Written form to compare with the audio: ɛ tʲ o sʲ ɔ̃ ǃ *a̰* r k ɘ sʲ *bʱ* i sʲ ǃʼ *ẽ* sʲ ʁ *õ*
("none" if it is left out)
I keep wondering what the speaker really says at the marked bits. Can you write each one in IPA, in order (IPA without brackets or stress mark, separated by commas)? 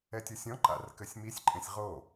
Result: a̰, m, ẽ, o